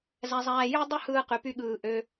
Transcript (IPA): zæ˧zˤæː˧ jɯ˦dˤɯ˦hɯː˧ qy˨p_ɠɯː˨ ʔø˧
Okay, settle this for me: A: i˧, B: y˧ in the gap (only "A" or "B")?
B